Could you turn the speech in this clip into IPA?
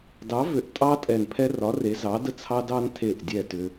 dɑ˨˥vʏ˨˥ʔtʼɑ˦ tʼɛ˧˩npʰɛ˦ rɒ˨˥re˨˥ zɑ˨˥də˦ t͡sʰɑ˦ dɑ˦ntʰe˧˩ʔdʲɛ˧˩ tʏ˦

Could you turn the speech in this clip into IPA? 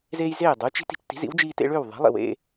zeː˥j zeː˥˩dˤuː˩˥t͡ʃ i̤˩˥ti̤˧t͡ʃ ti̤˩˥zḭ˩˥wd͡ʒiː˧tḛ˧ ɭʏː˥˩wðˤe̤˩˥lˠḭ˩wḛ˧

